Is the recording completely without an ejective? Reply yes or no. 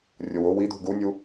yes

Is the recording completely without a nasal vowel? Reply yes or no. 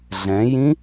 no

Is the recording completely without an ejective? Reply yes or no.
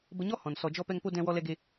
yes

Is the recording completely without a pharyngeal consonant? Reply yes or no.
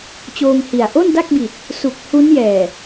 yes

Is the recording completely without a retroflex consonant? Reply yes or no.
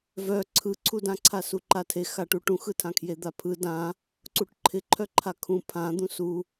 no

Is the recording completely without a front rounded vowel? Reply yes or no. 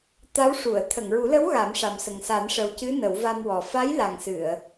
yes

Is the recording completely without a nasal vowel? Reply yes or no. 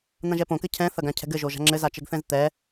no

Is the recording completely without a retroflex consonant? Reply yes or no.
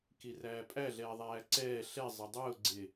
yes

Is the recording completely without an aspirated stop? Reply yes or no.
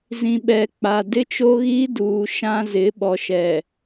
yes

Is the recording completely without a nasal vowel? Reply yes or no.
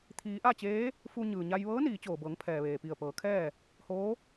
yes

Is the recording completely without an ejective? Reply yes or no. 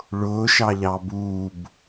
yes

